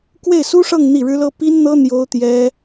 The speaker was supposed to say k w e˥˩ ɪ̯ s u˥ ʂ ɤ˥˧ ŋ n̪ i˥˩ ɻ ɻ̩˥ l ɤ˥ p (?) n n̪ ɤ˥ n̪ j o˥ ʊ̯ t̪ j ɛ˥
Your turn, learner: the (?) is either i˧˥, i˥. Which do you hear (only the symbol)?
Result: i˥